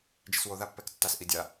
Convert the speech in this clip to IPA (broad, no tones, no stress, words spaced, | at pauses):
d͡ʒɪswo ðapːɛktːas ʔidʲa